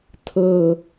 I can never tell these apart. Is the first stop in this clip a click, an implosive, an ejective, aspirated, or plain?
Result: aspirated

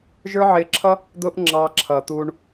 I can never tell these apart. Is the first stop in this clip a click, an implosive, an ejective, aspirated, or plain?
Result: click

